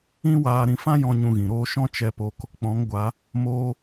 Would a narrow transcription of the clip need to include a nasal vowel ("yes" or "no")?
yes